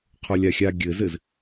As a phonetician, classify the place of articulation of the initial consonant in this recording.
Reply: uvular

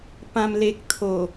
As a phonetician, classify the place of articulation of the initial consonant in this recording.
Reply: labial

